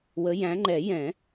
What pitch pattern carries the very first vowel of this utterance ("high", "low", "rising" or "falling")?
rising